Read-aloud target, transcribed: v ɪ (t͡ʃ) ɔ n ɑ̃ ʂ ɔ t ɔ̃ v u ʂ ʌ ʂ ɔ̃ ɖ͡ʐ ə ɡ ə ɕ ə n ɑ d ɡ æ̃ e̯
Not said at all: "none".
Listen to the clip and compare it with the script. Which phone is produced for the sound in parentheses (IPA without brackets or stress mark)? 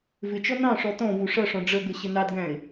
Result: t͡ʃ